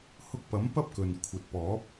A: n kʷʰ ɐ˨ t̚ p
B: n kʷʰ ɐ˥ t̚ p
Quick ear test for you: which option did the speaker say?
A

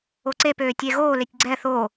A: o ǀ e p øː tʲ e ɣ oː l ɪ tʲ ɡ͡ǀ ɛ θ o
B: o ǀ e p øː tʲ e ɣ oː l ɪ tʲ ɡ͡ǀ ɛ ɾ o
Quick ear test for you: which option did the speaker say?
A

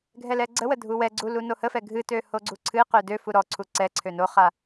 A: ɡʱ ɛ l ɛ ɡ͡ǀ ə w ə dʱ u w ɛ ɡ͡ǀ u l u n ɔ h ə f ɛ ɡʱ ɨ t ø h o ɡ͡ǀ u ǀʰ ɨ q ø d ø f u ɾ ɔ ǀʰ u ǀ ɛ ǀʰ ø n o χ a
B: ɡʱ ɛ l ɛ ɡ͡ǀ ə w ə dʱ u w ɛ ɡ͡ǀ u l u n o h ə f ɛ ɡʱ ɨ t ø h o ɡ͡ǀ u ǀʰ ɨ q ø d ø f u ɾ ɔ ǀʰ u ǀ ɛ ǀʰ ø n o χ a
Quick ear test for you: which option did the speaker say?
B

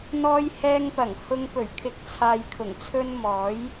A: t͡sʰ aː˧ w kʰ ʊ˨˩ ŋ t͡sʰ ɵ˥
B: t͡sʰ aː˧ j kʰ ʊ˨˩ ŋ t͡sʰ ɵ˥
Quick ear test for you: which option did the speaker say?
B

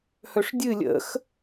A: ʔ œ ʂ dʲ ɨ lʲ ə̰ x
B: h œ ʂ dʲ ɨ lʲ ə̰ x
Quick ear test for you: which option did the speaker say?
B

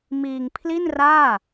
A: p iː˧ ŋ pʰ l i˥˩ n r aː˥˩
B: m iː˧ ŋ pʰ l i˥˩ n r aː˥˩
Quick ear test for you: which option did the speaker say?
B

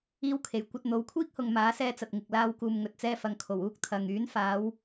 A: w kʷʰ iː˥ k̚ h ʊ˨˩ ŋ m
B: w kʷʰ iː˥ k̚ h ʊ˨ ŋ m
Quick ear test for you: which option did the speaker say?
B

